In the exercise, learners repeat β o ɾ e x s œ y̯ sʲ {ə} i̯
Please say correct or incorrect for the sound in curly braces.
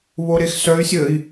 correct